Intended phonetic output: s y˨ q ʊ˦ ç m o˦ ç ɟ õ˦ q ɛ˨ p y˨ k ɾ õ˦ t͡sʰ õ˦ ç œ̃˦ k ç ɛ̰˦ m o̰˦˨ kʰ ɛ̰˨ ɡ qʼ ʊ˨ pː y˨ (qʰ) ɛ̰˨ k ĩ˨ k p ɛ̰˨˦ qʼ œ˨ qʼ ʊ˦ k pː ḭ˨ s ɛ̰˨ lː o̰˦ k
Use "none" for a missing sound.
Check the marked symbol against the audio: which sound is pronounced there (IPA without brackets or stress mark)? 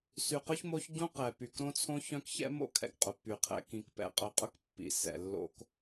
qʰ